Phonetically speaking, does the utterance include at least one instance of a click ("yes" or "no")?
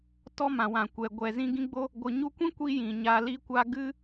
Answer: no